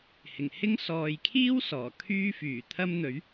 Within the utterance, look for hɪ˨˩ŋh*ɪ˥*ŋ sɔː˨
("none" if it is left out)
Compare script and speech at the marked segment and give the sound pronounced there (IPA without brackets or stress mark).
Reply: ɪ˥